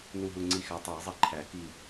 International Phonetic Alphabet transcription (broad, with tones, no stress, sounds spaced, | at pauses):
n u˧˩ ɦ u˧˩ ŋ͡ǀ i˧˩ x æ˨˩˦ tˤ æ˨˩˦ zˤ i˧˩ ǃʰ æ˨˩˦ k i˧˩